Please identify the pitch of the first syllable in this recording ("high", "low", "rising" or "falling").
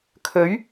rising